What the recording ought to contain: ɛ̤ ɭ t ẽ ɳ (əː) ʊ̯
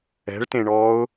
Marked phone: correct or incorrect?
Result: incorrect